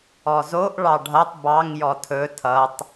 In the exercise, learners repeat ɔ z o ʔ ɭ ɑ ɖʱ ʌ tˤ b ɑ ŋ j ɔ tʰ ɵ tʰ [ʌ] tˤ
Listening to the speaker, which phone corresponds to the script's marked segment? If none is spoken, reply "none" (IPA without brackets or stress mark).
ʌ